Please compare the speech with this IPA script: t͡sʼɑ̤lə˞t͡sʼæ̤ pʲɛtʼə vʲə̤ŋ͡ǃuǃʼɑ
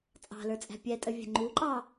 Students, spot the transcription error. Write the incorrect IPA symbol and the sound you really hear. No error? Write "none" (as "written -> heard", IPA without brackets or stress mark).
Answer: none